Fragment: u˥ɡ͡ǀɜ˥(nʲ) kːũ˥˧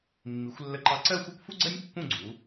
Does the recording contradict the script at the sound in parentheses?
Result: no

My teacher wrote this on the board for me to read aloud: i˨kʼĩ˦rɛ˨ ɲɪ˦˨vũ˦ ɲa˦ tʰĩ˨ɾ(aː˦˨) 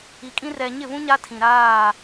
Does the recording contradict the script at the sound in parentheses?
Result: no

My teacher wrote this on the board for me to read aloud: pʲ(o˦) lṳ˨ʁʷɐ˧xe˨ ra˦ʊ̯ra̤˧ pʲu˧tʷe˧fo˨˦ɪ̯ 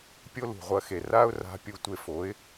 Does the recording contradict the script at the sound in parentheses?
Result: no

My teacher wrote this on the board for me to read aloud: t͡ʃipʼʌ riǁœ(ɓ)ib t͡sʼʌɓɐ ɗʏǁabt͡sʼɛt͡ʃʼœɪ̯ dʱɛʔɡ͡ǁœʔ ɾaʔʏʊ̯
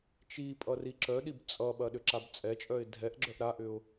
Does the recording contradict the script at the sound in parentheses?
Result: yes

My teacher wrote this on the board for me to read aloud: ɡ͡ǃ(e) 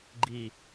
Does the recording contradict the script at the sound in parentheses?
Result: yes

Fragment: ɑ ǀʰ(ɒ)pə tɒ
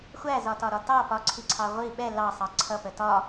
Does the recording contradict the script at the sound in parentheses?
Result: yes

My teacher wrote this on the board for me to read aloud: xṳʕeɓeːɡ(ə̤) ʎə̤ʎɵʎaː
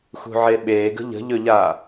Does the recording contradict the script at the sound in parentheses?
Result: no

